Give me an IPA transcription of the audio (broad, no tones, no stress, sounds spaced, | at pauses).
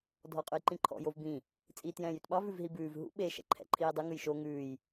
dʱ ɔ qʼ ʉ j ǃ ĩ ǃʰ ɔ̰ j o v b ĩ | t͡sʼ iː t j ɛ̃ː j y t ɓ ɑ v ʉ v ɦ i b ʉː v ɦ ṵ ɓ e ʃ ɛ̰ ǃʰ ɛ̰ ǃʰ iː dˤ ɵ ŋ ʉ j ʃ o ŋ ʉː j